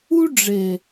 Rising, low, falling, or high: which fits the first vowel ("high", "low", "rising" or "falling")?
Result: high